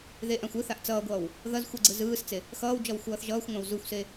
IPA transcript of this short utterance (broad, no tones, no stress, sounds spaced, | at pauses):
ð e ʔ ã xʷ ɯ θ a ʔ t͡s ʌː ɡʷ ʌː w | ð ʌ z xʷ ɯ ɡ͡ǀ ɯ z ɯː s t͡s e | x ʌː w d͡ʒ ʌ w xʷ ʌː θ ʒ ʌː xʷ ŋʷ ã w z u xʷ s e